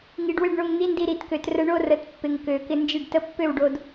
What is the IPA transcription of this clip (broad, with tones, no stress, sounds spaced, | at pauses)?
ŋ i˨˩ ɖ w ɪ˥˩ ɖ ɳ o˧ ŋ n̪ i˧˥ n d i˧ ɾ i˨˩˦ t k ø˨˩˦ t r ə˧ ɳ o˥˧ r ə˨˩˦ t pː ɪ˨˩ ŋ k ø˨˩˦ k ɪ˧ n d͡ʒ ɪ˥˩ ɖ t ə˧˥ pː ø˥˩ w ɖ o˧ d